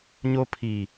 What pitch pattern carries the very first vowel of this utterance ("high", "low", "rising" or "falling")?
high